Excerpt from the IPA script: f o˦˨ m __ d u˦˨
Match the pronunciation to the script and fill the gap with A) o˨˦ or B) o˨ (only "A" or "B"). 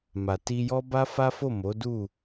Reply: A